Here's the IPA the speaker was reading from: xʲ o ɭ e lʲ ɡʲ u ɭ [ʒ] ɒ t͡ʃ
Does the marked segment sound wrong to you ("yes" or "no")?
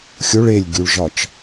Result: no